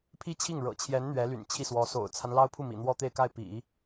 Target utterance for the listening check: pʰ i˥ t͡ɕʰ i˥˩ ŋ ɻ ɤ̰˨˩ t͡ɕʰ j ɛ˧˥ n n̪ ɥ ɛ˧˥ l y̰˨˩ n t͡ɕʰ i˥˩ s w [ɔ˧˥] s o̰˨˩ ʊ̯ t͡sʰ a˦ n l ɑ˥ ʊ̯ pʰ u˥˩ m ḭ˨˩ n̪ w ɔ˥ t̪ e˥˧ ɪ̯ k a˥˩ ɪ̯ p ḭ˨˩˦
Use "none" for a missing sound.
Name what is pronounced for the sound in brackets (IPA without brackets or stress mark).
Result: ɔ˧˥